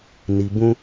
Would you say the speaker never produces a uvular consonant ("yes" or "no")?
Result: yes